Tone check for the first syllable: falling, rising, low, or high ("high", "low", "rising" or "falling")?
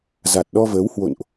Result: low